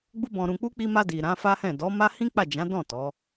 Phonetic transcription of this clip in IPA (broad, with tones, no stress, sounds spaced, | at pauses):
ɡ͡b u˦ b ɔ̃˧ ɾ ũ˧ k͡p u˦ k͡p i˧ m a˧ d i˨ ɾ ã˨˦ f a˦ h ɛ̃˦˨ d ɔ˨˦ m a˦ h ĩ˦ k͡p a˦˨ d͡ʒ ã˨˦ d ɔ̃˦˨ t ɔ˨˦